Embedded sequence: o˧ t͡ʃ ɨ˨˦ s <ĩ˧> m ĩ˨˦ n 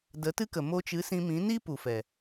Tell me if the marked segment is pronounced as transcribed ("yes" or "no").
yes